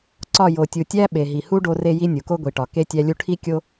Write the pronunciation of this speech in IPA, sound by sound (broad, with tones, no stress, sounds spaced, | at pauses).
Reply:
ǀ ɒ˦˨ j o˨ tʲ u˨ tʲ æ˦ ɓ e˨ ɦ i˨ h u˦ ɖ o˦ r e˦ j i˦ nʲ u˨ k o˦ ɡʷ i˨ ʈ ɒ˨ k e˦ tʲ æ˦ lʲ u˦ ʈʰ i˦ kʲ o˦